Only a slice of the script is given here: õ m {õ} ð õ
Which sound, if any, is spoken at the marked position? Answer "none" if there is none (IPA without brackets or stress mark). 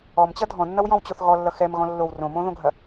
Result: õ